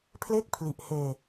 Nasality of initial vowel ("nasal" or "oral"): oral